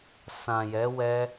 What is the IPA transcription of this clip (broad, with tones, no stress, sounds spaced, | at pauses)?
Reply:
s ã˨ j ɛ˨˦ w ɛ˦